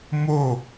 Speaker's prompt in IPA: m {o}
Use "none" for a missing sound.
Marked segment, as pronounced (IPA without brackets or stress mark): o